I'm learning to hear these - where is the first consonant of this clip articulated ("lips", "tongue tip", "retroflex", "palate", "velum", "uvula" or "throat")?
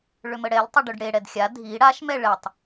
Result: retroflex